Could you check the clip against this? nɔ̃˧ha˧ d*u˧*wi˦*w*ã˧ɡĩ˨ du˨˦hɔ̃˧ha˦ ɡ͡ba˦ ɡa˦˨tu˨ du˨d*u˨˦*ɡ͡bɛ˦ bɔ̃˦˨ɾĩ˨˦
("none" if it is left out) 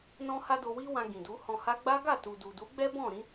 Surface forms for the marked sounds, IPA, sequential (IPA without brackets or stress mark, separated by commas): o˧, w, u˨˦